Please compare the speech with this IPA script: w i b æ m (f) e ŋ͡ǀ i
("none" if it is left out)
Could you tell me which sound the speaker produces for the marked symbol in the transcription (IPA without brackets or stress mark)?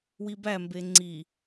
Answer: b